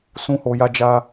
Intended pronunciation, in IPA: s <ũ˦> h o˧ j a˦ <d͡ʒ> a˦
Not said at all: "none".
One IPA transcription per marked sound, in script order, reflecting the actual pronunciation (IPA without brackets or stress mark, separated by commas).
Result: ũ˦, d͡ʒ